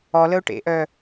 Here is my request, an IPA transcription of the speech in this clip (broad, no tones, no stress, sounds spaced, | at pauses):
ɔ l ə ʊ̯ ʈ ḛ ʔ œ